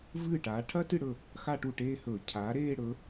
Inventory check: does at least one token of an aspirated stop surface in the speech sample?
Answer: yes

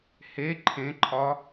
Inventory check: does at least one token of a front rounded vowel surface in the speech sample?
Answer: no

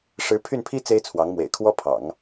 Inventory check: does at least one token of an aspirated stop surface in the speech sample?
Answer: yes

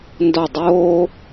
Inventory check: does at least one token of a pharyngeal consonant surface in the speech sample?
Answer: no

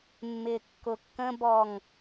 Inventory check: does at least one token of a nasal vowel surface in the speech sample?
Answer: yes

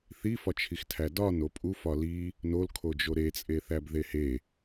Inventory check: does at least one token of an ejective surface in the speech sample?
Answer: yes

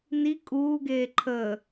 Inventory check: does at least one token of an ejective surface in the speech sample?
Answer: yes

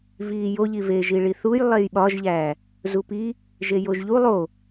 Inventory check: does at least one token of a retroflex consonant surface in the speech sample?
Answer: yes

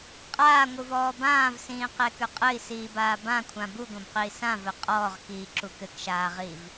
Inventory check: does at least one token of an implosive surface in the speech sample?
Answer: no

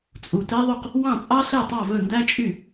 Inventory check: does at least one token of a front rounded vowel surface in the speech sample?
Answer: yes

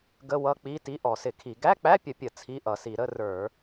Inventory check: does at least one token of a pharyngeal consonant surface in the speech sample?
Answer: no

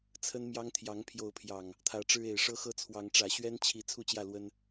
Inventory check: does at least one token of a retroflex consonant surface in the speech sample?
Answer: yes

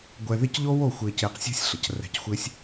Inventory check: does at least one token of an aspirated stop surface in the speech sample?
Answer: no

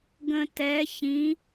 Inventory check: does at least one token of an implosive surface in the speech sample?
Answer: no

